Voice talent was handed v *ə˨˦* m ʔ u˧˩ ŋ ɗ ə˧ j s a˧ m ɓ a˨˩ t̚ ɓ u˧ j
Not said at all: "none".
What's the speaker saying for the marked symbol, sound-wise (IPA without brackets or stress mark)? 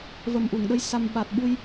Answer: ə˨˩